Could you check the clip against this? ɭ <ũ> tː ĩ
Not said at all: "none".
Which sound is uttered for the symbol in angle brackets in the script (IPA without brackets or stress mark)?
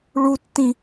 u